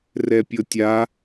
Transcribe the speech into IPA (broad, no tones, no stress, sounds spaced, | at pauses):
r ɛ pʲ ɤ tʲ a